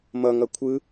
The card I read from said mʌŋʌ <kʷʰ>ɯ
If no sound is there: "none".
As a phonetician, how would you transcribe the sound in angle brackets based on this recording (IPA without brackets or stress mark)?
kʷʰ